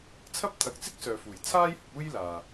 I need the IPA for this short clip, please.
t͡sʰ ɐ˥ p̚ t̪ʰ ɐ˨˥ k̚ t͡s ɪ˥ k̚ s œː˨ f uː˨˩ j t͡sʰ aː˥ j h ʊ˧ k̚ uː˥ j l aː˨

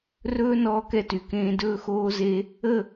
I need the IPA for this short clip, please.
r ɵː˦ n ɔː˦ k ɛ˦ t y˨ k ẽː˦ d ɵː˦ x oː˦ z e˦ | ə˦˨

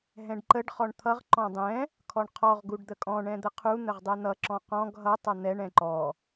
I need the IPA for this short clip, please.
ɦ ɛ̃ ɖ ǃ ə ɖ χ ɔ ɳ t̪ʰ ʌ ʁ ǃ ɔ̃ dˤ ɛ̃ | kʰ ɔ ɳ qʰ ɔ ʁ ɡ u ɖ d̪ ə kʼ ɔ̃ ɳ ɛ̃ d̪ ə qʰ u n̪ ə ʁ dˤ ɛ n̪ ʌ ǁ ɔ̃ q ɔ̃ ɡ ɦ ʌ tˤ ʌ n̪ ɛ ɳ ɛ̃ ǃ ɔ

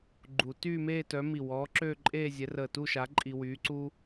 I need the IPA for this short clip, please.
ɡ͡ǃ u˨˩˦ t yː˥˧ m eː˥˧ t œ˨˥ m i˧˩ w ɔː˨˥ ǁ øː˥˧ ǃʼ eː˥˧ zʲ ɛ˨˥ r əː˧˩ t u˥˧ ʃ a˨˥ ǃʼ i˧ w yː˨˥ ǀ u˥

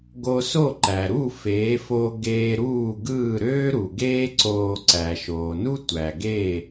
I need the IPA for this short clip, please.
ɡ o˧ s o˥˩ ǃ æ˩ ɾ u˥˩ f eː˩˥ f o˧ ɡ eː˧ ɾ uː˥˩ ɡ ɯː˥˩ ɾ øː˥ ɾ u˩ ɡ eː˥ ǀ oː˧ ǀ æ˩ ʃ oː˩ n u˥ tʷ æ˩ ɡ eː˥˩

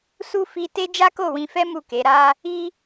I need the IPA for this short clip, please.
s u˦ f i˦ t e˦ d͡ʒ a˦ k o˦˨ w ĩ˧ f ɛ˦ m u˦˨ k e˨˦ ɾ a˦ | i˦

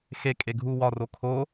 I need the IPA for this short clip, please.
x e kʼ e ɡʱ u w ɒ r o kʰ o

